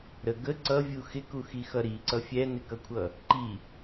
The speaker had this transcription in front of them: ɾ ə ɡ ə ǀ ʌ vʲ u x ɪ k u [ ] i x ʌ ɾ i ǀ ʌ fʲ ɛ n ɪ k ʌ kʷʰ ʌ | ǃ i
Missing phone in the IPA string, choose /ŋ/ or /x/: x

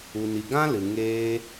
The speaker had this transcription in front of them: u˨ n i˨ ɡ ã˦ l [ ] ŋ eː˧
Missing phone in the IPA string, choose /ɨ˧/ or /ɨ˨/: ɨ˨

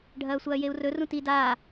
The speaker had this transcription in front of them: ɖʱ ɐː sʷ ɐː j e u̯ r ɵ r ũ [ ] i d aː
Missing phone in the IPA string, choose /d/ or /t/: t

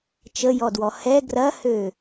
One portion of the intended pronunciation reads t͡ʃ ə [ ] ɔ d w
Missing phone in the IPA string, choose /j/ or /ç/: j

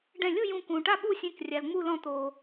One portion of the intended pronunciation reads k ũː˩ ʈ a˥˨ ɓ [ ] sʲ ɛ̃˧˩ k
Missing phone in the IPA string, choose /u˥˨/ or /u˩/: u˥˨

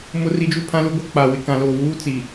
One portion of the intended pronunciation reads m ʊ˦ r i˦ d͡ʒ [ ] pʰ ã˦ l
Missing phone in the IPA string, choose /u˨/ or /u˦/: u˦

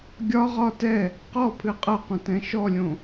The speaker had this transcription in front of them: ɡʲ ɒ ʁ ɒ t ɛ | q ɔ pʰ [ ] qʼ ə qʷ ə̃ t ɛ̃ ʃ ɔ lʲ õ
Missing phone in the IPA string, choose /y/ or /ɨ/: ɨ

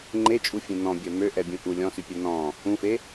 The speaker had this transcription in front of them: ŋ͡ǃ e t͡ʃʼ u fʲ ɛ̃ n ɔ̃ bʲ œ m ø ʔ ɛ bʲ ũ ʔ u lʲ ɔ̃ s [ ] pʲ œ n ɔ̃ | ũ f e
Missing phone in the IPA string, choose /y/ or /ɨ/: y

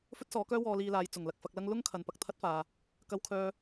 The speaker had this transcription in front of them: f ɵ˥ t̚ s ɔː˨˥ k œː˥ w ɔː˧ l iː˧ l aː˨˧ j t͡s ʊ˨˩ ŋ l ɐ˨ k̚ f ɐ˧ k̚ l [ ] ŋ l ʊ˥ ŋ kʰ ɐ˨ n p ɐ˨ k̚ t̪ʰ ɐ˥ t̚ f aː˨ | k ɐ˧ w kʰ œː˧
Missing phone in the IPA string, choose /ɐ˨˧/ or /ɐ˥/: ɐ˥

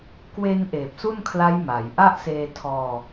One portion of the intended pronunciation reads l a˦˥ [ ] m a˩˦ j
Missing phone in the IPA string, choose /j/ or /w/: j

